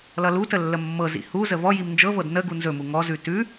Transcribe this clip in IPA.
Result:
l ʌ l u t ə lː ə mː ɤ z ḭ h u z ə v ɔ j i m n d͡ʒ ɤ v ɤ d n ə ɡ u n z ɵ m u ŋ ɔ z ʉ t ʉ

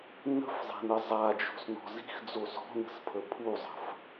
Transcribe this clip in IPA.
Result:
n ə̤ f zˤ i̤ n ə zˤ a d͡ʒ o̤ s n ɔ̤ z i̤ x d͡z o s ɔ̤ n ə̤ s pʰ ə pʰ u zˤ ə̤ f

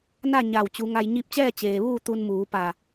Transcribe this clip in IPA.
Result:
n a˥˨ ɲ a˧˩ w t͡ɕ u˩˧ ŋ a˧ j ɲ i˧ p̚ t͡ɕ ɛː˥˨ t͡ɕ eː˩ ʋ uː˥˨ t̪ u˧ n m uː˩˧ p a˧˩

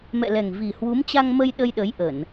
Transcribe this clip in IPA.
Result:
m ɛ̰˧˨ l ɛ˨˩ ŋ v i˨˩ h w u˨˦ m t͡ɕ a˧ ŋ m ə˧ j ɗ ə˧ j ɗ ə˨˦ j ʔ ə˧˩˨ n

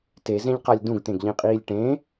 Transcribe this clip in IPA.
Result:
t e z ẽ ʎ q a lʲ d ũ ɡ t̪ ẽ ɡ ʎ ĩ qʼ iː lʲ ʈ ẽ

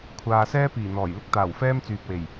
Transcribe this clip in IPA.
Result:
kʷʰ aː˨ s ɛː˥ p iː˨˩ n̪ ɔː˨˩ j l ɪ˥ k̚ t̪ aː˨˩ w f ɛː˥ m t͡s yː˨ p̚ w e˨˩ j

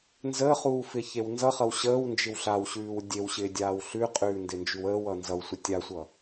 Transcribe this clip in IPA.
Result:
n z əː χ uː f ɪː ç e w n z ʌ χ ʌ w ɕ əː w n d͡ʒ ɪ w ɬ a w ɕ ʉː w dʲ e w ɕ ɪː dʲ aː w ɬ ʉ qʼ ʉː n d ɪ n d͡ʒ ʉ w əː w ʌ n z ʌ w sʷ ɪ tʲ a sʷ ʌ

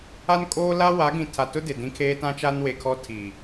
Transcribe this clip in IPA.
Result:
a˦ n kʼ oː˦ l a˦ w a˨˦ ɡ ĩ˨ tʰ a˨ t ʊ˦ d ɪ˨ d ĩ˦ kʰ eː˦ t ã˦ t͡ʃ a˦ n w e˨ kʰ ɔ˦ tʰ i˨

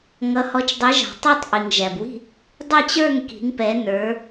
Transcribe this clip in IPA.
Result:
ŋ ʌ˨˦ h ɔ˨˦ t͡ʃ dˤ i˨˦ ʒ ɑ̤˨ tˤ ɛ˥˨ tˤ ʔ i˨ ŋ ʒ æ˨ b w i̤˥˨ | dˤ ɛ˥˨ t͡ɕ ə˞˥˨ ŋ k i̤˨˦ ŋ p ɛ˨˦ n ə˞˨˦

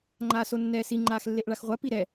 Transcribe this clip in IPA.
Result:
ŋ͡ǃ aː s o nː ɛː s i ŋ͡ǃ aː x lː e ʔ ɭ a x ʁʷ a p i ɾ ɛ

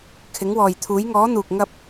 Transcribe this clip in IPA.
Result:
kʰ ɪ˨˧ ŋ w ɔː˨ j t̪ʰ uː˨˧ j ŋ ɔː˨˧ n̪ uː˨ k̚ ŋ ɐ˧ p̚

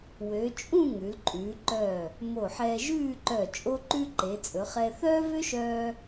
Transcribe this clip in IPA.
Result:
w ø˩˧ t͡ʃʼ ũ˥˧ ŋ ʉ˩˧ l ǃʼ ʉː˩˧ ǃ œː˧˩ | m o˧˩ ħ ɛː˧ ʒ ʉː˥˧ ǃ œ˧˩ t͡ʃʼ o˥ ǃ ʉ˥ ǃ e˩˧ t͡sʼ ɵ˩˧ χ ɛ˧ θ œː˥ v ø˥ ʃ œː˧

